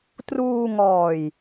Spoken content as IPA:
t r uː˧ ŋ ɔː˨˩ j

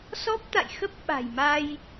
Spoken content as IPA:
s ɔ˦˥ p̚ t̪ a̰˧˨ j x ə˦˥ p̚ ɓ a̤˨˩ j m a˧ j

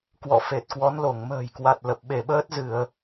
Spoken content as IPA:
k w ɔ̰˧˨ f e˨˩ t̚ k w ɔ˨˦ n l o˧˩ ŋ m ə̤ː˨˩ j k w a˨˩ t̚ l ə˨˩ p̚ ɓ e˧˩ ɓ əː˦˥ t̚ z ɨ˧˩˨ ə̯

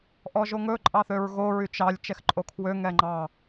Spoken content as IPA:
ʔ ɔ ʒ o ŋ ɵ ǃʼ ɑ θ ø ɹ ɣ o ɹ y t͡ʃ ɑ lʲ t͡ʃ ɛ x ǃʼ o kʰ w ø ŋ ɛ ŋ͡ǃ ɑ

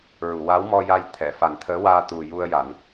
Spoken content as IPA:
ɹ u˨˩˨ w a˧˥ w m ɔ˧ j a˧ j t̪ʰ ɛ˨˩˨ f a˨˩˦ n t̪ʰ əː˧˥ w aː˧ t̪ u˨˩ j u˧ ə̯ j a˨˩˦ n

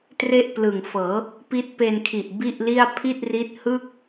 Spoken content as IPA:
t r e˥˩ ʔ p l ɯ˨˩ ŋ f ɤː˩˦ | p i˦˥ t̚ p e˧ n kʰ i˨˩ ʔ b i˥˩ ʔ l i˥˩ a̯ pʰ i˥˩ t̚ r i˦˥ t̚ h ɯː˥˩ k̚

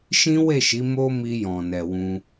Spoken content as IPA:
ʃ ĩ˦ w e˦˨ ʃ i˨˦ m o˦ m i˧ j ɔ̃˨ n ɛ˨ w ũ˧

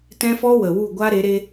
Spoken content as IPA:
t ɛ̃˦ f ɔ˦ w ə˨ w u˦˨ ɡʷ a˦ ɾ e˨˦ ɾ e˦

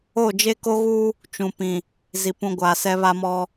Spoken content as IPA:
o˦˨ d͡ʒ e˦ k o˦ ɣ u˦ | t͡ʃ ũ˨ p ĩ˨ | z i˨ p ũ˨ ɡʷ aː˨ s ɛ˦ β a˦ m ɔ˦

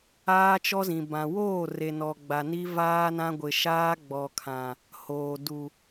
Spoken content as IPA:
aː˦ t͡ʃ ɔ˦ z ĩ˨ b ã˨ w oː˦˨ r e˨ n ɔ˨ ɡ͡b a˨ n i˦ v aː˦ n ã˦ ɡʷ ɪ˨ ʃ aː˦ ɡ͡b ɔ˨ kʰ ã˨ | h oː˨ d u˨

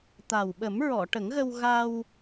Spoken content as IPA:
t̪ a˨˩ w ɓ ə˨˩˦ m ɹ ɔ˨˩˨ ʈ ə˨˩˦ ŋ ɣ ə˧ w ɣ a˧ w

